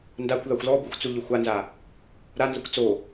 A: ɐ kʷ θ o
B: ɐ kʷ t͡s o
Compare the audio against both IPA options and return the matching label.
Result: B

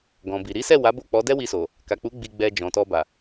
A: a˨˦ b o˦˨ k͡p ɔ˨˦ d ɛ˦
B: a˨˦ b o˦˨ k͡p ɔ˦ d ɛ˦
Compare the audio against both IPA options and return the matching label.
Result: A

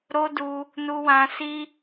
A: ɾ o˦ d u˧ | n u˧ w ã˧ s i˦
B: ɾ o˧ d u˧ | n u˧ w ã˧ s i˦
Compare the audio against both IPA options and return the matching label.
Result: A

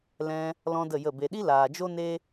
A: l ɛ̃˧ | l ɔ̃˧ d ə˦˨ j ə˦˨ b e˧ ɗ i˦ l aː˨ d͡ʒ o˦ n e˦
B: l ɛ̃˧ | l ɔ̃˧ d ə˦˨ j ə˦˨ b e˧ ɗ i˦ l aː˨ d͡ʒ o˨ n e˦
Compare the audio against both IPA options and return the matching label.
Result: A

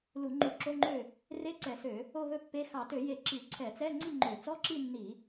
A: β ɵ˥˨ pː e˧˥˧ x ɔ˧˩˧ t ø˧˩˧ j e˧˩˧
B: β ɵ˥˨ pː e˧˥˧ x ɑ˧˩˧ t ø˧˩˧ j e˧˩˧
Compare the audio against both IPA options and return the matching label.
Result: B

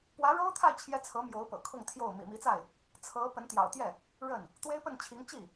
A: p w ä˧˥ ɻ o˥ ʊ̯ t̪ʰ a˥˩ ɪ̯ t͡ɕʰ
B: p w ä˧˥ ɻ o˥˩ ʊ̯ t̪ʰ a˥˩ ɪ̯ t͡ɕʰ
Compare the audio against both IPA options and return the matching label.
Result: A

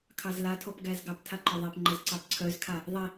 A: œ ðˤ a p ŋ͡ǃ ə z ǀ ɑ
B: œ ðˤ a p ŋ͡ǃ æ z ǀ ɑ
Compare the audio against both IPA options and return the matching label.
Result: A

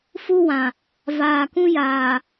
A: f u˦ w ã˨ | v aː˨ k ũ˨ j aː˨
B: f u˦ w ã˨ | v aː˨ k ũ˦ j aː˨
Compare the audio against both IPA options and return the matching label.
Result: B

